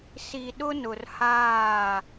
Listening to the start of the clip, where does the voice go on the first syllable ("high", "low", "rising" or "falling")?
low